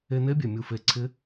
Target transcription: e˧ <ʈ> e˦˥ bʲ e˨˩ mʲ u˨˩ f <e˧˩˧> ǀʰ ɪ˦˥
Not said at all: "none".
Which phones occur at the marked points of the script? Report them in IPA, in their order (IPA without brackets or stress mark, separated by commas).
n, e˨˩